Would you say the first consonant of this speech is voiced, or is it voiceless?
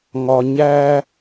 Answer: voiced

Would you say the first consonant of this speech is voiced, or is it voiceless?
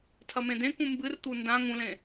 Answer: voiceless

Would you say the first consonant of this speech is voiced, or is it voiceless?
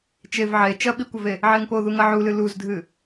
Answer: voiceless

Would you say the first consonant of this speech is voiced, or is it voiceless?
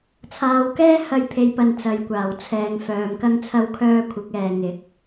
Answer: voiceless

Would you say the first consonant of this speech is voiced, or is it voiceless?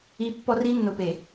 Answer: voiceless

